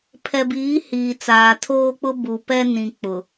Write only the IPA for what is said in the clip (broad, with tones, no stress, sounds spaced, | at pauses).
pʰ ɛ˨ b iː˨˦ h iː˨ t͡s aː˨ tʰ oː˦ k͡p ʊ˦ b u˨ p ɛ˦ n ĩ˨ k͡p ʊ˨